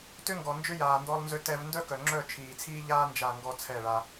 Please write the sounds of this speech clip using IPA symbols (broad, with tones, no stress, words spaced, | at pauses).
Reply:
tʏ˦ŋɡɔ˨ nd͡ʒʏ˦jaː˨ndɔ˧lˠ nzʏ˦tɛ˦v ndœ˦kœ˨ŋ͡ǁœ˦˨ t͡ʃʰiː˨t͡sʰiː˦ ʎaː˦ nd͡ʒa˦˨ŋɡɔ˦ t͡sʰɛ˦˨ɭa˧